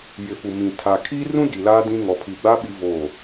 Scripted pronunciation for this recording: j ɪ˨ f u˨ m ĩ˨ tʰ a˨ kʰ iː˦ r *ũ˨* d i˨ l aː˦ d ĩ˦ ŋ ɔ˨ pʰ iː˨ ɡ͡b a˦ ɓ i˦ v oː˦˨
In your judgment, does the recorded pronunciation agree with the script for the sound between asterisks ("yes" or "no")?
no